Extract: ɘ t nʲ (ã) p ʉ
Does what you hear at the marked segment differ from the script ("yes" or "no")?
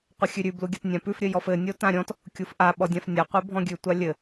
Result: no